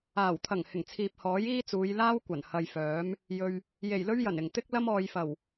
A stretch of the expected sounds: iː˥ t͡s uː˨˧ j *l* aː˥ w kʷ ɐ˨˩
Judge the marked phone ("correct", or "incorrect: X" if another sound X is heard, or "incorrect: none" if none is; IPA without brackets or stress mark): correct